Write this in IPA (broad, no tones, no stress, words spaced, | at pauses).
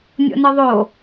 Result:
nʲo̰nɯðˤo